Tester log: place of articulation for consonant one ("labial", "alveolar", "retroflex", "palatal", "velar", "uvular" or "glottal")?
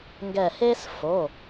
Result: velar